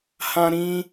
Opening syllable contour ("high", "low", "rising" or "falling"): high